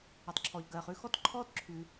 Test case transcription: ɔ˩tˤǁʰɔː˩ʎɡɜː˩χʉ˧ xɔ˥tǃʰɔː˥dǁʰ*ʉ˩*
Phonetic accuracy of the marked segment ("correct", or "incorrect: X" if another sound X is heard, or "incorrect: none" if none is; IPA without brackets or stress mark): correct